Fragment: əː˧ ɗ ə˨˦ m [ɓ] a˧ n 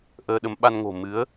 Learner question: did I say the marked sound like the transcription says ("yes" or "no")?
yes